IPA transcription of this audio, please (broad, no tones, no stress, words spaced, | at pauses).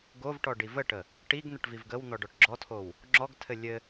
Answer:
ɡovʈɔ ɖivəʈə | ʈiɡ n̪əʈvivɡəwn̪ɔ ɖɔʈɡ͡ǁɔtʰow | ŋ͡ǁɔɡtʰɘ lʲɘ